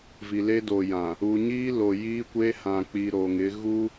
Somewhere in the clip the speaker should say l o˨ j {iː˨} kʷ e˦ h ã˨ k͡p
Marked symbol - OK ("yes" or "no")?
no